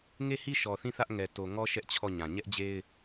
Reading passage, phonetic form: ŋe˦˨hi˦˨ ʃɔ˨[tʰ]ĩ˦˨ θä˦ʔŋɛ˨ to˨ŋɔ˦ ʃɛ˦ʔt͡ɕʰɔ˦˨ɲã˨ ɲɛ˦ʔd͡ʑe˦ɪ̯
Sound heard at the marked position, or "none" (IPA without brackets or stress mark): θ